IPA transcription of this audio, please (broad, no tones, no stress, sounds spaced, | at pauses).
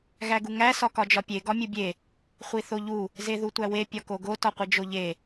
ɣ æ ɡ u ŋ æ s ɒ k ɒ d͡ʒ ɒ pʲ e ɡ ɒ mʲ u bʲ e | χʷ i θ o ʎ u | z e ð u tʷ æ w e pʲ ɒ k o ɡ o t ɒ qʷ i d͡ʒ o ʎ e